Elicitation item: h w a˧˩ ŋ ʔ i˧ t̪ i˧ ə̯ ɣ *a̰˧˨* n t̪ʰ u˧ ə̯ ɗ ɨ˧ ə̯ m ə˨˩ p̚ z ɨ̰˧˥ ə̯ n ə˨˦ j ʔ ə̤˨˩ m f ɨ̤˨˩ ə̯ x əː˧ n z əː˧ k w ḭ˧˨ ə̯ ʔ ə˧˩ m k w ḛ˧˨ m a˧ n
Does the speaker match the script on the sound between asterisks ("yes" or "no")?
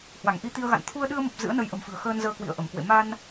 yes